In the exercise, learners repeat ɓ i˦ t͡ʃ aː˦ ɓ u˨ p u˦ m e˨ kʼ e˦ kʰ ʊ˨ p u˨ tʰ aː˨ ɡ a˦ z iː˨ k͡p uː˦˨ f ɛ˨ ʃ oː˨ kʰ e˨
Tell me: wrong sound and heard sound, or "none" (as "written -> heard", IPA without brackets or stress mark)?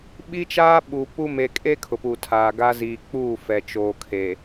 ʃ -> t͡ʃ